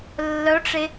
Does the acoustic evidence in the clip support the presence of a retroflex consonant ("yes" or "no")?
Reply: yes